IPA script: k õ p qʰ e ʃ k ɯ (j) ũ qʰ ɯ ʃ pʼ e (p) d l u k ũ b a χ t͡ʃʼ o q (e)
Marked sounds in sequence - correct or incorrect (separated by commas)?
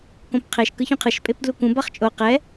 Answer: incorrect, correct, incorrect